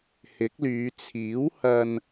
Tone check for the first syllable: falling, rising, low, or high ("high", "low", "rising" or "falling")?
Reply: rising